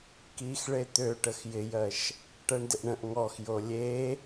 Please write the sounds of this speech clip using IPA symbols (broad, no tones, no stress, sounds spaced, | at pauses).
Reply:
k i x ɭ e t̪ ø ʈ ə x j ɪ j ɜ ʃ | ʈ ɜ ɳ d ɪ ʔ ɳ ə̃ ʔ ŋ ɔ x j o lʲ e